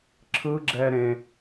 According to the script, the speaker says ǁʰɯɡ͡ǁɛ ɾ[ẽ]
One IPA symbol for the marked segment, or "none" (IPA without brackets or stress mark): ẽ